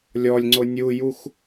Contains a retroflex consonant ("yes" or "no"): no